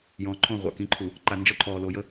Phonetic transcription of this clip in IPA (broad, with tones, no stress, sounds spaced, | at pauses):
j ɔ̃˨˦ ǃʰ õ˦˨ ʁʷ a̰˨ k ĩ˨˦ ǃʰ u˨ | ǃ a˨ n d͡ʒ ɔ˦ ǃʰ ɔː˨ l o˨ j ə˦